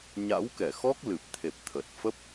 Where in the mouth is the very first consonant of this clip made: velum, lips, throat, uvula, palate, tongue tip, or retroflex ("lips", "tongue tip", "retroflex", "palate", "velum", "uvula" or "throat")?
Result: palate